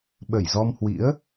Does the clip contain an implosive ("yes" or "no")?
yes